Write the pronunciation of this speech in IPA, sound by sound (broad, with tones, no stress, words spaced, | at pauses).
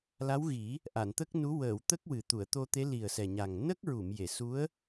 la˧˥wɣi˨˩˦ | ʔa˨˩˨nt̪ə˦˥k̚nu˧˥ wəː˨˩˨wt̪ə˦˥k̚ wɨ˨˩t̪u˨˩˨ə̯t̪o˧t̪e˧˥ li˨˩ə̯ sɛ˨˩ɲa˨˩ŋ nə˦˥k̚ɹu˨˩˨m je˨˩˨su˧˥ə̯